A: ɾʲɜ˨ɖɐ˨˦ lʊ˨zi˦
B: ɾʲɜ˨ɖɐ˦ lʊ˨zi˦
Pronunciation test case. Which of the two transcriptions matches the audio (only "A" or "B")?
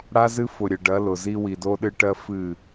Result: A